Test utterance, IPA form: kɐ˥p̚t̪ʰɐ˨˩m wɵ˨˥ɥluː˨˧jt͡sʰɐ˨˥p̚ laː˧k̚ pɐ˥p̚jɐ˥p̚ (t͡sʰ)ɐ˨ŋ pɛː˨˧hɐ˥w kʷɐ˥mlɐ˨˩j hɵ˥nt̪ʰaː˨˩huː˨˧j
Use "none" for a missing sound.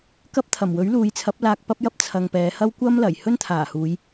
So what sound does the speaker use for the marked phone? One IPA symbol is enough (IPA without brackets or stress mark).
t͡sʰ